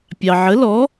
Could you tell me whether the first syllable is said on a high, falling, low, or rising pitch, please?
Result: low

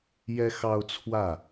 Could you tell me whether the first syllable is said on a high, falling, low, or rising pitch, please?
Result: high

